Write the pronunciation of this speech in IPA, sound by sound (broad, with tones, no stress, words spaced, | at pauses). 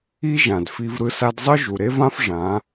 i˦ʒã˨d fi˧vɾɯ˧ sa˧dzˤɯ˦ ʒu˨ɾe˦vã˦f ʐã˨˦